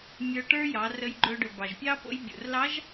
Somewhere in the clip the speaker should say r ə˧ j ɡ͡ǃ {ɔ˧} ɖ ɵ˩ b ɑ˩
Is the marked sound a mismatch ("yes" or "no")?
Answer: yes